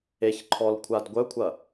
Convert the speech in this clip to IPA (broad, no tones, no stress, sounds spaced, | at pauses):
e ç ǃʰ ɔ l kʷʰ a d ɡʷ œ kʷʰ ɐ